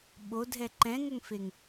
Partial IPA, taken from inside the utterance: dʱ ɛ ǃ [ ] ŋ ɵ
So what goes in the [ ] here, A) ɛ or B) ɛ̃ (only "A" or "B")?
B